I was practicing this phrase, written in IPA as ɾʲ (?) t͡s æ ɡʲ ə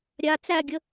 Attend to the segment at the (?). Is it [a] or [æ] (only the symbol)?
a